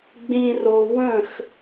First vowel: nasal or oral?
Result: nasal